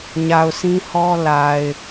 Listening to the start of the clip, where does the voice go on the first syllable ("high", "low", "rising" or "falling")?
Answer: low